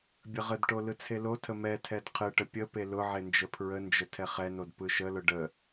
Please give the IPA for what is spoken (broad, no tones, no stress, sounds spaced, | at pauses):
bʲ ə ʁ ə d ʈ o l ɯ t͡sʰ e l o tʰ ə m ɛ tʰ ɛ d qʰ ɯ ʈ ə pʲ ə p e l ʊ ʕ e n d͡ʒ ə pʰ ɹ ə n d͡ʒ ə tʰ ɛ χ ɛ n o d p ɯ ʃ ə l ʊ ɖ ə